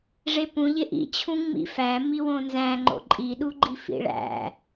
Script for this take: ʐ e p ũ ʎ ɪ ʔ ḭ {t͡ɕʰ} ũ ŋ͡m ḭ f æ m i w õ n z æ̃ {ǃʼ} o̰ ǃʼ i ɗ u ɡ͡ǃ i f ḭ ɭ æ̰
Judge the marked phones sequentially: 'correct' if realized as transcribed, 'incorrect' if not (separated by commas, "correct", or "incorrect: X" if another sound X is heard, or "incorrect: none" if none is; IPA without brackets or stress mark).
correct, incorrect: ŋ͡ǃ